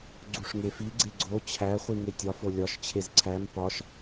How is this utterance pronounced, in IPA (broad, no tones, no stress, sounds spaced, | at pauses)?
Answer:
ɡ͡ǀ u ʂ ŋ e f i ɡ͡ǀ e ɡ͡ǀ o t͡ɕʰ æ χʷ i ŋ e tʲ ɒ f o lʲ ɒ ʃ t͡ɕʰ e z ǀʰ æ m p ɒ ʃ